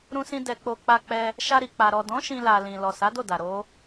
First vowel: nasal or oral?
nasal